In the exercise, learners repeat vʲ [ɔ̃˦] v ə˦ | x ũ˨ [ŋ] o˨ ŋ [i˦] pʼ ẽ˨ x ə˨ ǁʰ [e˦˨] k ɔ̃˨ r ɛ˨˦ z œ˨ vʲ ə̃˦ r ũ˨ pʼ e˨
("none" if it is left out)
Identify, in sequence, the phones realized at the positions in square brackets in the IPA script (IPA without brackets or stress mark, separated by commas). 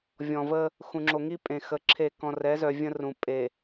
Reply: ɔ̃˨, ŋ͡ǁ, i˦, e˦˨